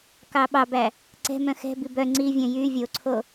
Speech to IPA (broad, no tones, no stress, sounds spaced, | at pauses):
k ɑ ɓ ɑ b æ | ǀ ɛ̤ m œ̃ x ɛ̤ b i b œ ŋ͡ǀ i vʲ œ̃ j y vʲ o ǀʰ o